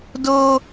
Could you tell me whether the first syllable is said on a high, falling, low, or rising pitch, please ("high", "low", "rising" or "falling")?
high